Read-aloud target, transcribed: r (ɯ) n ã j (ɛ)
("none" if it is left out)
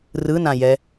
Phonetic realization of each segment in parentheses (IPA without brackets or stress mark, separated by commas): ɯ, ɛ